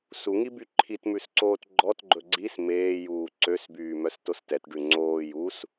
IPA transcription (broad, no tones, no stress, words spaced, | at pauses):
suŋi byǃʰitmʉsǀoːt ɡ͡ǃɔtɡ͡ǃɵ ɡ͡ǀis meː juːǀøsbyː mœstostɛtɖʉ ŋ͡ǀoː jus